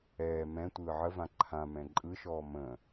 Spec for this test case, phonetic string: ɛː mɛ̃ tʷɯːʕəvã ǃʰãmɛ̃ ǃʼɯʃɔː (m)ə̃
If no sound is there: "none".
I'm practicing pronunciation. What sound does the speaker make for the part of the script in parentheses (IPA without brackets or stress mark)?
m